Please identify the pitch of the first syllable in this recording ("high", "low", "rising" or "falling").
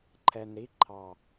low